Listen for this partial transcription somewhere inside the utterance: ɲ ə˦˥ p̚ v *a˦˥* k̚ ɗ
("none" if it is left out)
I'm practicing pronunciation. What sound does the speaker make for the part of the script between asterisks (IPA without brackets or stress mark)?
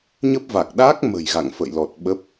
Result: a˨˩